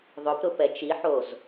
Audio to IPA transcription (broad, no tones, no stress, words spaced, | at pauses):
ðˤʊpɾʊ pɛt͡ʃiħoz